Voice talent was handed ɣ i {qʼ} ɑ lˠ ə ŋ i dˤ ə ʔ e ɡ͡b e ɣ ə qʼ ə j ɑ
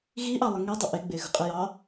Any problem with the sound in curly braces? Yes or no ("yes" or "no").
yes